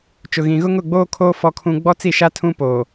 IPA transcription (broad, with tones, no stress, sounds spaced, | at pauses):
t͡ʃ ʊ˨ ɣ ĩ˨ ɣ ʊ˦ ŋ ʊ˦˨ ɡ͡b oː˦ kʰ oː˦ f ɔ˦ kʰ ũ˦ ɡ͡b ɔ˦ t͡s i˦˨ ʃ a˦ tʰ ũ˦ p oː˨